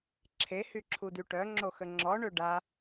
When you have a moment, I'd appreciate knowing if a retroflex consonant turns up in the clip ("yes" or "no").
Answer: yes